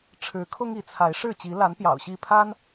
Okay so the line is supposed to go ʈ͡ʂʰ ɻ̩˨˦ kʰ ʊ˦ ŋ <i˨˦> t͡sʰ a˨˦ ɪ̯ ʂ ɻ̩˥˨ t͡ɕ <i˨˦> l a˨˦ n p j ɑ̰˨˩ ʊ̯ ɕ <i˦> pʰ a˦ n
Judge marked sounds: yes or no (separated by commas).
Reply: yes, yes, no